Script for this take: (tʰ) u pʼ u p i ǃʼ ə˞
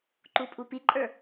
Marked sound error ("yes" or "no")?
yes